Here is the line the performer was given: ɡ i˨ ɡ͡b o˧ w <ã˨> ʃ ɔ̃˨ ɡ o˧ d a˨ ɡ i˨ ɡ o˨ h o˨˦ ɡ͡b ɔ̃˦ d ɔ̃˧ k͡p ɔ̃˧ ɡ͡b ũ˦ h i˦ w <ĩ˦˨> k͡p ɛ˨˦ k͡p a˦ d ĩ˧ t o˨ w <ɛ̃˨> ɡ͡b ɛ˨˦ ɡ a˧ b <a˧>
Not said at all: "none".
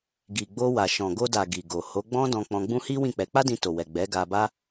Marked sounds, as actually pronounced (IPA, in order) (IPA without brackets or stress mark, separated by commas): a˨, ĩ˦˨, ɛ˨, a˦